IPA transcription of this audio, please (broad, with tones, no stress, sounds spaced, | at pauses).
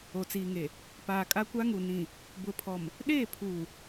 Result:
o˨ t͡s iː˨ ŋ e˨ | p aː˨ kʼ a˦ kʷ a˦ ŋ u˨ n ĩ˨ | b ʊ˨ pʰ ɔ˨ m | ɗ eː˦˨ pʰ uː˨